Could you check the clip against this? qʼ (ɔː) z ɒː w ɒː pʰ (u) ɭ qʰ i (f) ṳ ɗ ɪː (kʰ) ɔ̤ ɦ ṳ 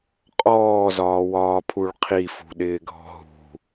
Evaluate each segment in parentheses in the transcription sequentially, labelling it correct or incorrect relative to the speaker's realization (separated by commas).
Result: correct, correct, correct, incorrect